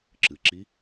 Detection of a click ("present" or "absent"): present